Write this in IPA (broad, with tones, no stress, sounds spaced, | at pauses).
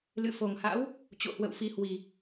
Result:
l ɨ̰˧˨ f o˨˩ ŋ h a̰˧˥ w | t͡ɕ o̰˧˨ h w ə̰˧˨ w f i˨˦ h w i˨˩